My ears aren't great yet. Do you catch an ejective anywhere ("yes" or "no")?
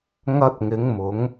no